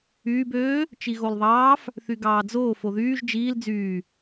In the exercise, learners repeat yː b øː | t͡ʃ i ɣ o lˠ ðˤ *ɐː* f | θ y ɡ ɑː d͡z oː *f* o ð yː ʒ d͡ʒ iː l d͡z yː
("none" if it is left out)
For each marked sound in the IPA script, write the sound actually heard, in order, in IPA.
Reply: ɑː, f

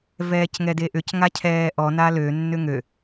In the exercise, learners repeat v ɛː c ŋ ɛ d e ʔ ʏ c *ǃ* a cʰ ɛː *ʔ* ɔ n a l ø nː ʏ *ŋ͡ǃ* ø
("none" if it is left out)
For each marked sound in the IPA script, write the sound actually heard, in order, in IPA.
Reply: ŋ, ʔ, ŋ

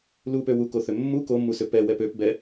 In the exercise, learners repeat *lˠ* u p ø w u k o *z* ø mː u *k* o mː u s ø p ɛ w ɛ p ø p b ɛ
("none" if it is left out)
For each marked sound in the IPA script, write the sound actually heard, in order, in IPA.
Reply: l, θ, k

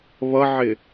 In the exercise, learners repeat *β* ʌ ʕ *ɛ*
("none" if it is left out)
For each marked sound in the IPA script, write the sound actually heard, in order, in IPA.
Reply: β, ɪ

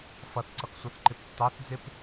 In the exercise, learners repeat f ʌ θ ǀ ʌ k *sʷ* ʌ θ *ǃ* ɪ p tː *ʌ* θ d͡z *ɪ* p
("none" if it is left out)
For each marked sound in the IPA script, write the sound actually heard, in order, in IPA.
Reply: sʷ, ǃ, ɑ, ɪ

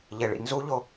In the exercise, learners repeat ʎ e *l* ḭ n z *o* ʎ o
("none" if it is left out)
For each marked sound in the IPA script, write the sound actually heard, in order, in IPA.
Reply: ɭ, u

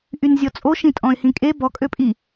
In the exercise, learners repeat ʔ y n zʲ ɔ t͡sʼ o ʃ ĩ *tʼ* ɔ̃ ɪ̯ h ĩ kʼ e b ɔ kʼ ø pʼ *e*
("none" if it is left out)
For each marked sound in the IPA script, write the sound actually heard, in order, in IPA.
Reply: tʼ, i

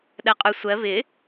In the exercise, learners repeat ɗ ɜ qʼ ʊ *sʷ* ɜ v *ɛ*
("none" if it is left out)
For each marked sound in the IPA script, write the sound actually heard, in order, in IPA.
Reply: sʷ, ɪ

